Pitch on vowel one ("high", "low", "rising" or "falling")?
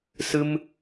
high